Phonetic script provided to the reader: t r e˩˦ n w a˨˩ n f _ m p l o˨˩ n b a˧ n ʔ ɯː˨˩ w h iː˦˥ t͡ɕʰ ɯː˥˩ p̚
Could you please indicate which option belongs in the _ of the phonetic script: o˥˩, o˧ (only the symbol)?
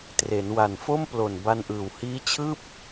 o˥˩